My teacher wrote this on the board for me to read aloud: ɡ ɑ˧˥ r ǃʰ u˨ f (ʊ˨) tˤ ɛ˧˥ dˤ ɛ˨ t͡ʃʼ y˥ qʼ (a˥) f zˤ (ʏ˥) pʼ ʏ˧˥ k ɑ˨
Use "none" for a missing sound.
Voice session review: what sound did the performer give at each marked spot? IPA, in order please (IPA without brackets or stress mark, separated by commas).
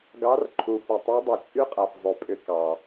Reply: u˨, a˨, ʏ˧˥